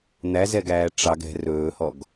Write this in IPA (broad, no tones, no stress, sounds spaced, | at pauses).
n̪ æ z ɛ ɡ æː ʈ͡ʂ ɑ ɡ ɛ̤ r ɵː h ɔ ɡ